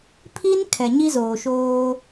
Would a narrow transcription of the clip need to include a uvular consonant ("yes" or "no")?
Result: no